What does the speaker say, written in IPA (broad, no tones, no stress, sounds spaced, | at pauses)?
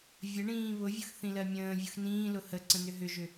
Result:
vʲ ə ɳ ĩː β ʊ vʲ ʊ x θ ĩ l ɜ mʲ ə̃ː vʲ ʊ x n ĩː l ʊ h ə ǀ ə̃ n ʏ ɦ ʏ ʒ ʏ